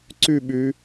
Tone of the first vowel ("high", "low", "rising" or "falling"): falling